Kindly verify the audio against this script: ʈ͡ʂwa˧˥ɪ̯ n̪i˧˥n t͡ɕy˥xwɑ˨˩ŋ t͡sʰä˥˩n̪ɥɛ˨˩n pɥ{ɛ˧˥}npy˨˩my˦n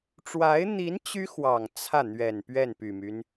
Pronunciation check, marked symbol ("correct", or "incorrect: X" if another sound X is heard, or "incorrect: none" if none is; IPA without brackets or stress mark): incorrect: ɛ˥˩